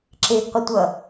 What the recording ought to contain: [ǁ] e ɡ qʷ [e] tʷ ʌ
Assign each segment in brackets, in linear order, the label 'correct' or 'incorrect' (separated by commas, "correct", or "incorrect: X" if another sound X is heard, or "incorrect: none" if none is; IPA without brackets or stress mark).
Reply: correct, incorrect: ɘ